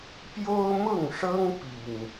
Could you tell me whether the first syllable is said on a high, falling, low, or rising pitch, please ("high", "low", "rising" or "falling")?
high